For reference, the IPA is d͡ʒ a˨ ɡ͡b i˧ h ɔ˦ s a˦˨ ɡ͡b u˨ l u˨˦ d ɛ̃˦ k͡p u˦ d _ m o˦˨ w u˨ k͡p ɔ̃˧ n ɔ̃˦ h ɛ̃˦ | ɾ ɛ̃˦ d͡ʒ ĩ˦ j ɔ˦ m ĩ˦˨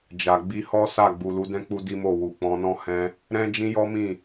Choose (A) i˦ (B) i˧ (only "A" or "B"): A